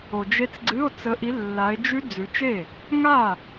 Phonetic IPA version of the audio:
o˨d͡ʒe˦˥t͡sɡ͡ǀɨ˧˥˧o̯ t͡sə˨˦ʔi˨˦ lːa˨˦e̯d͡ʒʉ˦˥ d͡zʉ˨˦t͡ʃe˥˩ | ŋa˥˩

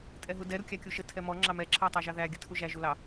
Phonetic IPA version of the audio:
tʼɛɦudɛ ɾukʲækʲuʃə tʰɛmɔ ŋ͡ǁɑmɛ ǁʰɑtˤɑʒɑðæ ɡʲətʰuʒæ ʒulɑ

